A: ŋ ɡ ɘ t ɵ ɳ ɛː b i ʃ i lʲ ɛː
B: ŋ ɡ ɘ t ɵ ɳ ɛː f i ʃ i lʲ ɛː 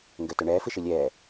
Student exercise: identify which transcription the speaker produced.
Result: B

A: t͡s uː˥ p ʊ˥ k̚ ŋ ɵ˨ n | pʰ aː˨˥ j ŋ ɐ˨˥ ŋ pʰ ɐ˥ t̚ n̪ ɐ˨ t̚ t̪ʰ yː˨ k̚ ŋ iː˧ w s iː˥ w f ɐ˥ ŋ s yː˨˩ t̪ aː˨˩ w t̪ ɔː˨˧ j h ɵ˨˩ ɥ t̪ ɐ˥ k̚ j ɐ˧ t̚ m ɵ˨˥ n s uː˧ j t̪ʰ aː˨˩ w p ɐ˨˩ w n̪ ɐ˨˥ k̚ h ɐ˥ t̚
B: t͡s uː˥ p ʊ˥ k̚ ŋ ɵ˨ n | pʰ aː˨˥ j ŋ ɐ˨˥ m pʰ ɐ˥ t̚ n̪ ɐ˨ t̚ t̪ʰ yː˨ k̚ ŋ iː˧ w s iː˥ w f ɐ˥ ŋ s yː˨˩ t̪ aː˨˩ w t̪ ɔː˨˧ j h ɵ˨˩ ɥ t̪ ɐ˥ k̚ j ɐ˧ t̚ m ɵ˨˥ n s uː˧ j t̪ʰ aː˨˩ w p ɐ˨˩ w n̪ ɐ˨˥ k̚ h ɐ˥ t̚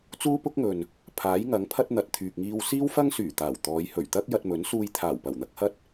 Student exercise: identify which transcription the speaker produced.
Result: A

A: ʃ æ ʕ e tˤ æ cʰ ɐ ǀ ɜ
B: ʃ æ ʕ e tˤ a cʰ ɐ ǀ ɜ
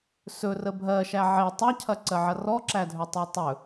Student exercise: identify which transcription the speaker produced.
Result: B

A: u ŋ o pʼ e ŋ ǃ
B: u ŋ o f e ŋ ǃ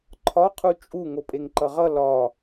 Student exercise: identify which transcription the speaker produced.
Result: A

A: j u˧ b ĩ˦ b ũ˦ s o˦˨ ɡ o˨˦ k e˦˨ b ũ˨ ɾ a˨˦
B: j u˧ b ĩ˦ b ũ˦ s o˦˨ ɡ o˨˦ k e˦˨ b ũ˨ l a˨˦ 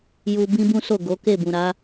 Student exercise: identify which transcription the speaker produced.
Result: A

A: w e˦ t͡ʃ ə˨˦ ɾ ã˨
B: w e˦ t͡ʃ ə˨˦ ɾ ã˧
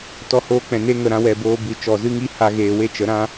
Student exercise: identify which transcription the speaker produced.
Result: B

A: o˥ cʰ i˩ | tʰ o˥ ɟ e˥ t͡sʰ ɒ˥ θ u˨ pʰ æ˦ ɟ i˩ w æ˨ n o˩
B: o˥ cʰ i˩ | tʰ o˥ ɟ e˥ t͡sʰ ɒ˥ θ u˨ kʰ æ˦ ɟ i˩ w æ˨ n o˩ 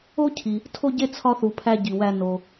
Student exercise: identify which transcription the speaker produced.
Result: A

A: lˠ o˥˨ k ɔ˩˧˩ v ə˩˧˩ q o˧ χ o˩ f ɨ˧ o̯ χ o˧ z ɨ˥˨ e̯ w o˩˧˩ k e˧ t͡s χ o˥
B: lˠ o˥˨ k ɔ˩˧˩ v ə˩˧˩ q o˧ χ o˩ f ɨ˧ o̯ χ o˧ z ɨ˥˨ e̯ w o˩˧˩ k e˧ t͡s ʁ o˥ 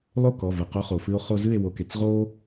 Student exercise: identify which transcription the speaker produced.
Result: B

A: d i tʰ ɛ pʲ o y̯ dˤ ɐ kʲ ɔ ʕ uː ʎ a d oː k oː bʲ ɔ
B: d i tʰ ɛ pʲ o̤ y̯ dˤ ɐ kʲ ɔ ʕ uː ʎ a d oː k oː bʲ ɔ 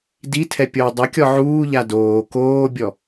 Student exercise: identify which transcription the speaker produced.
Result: A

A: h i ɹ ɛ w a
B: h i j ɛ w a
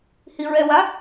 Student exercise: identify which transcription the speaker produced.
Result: A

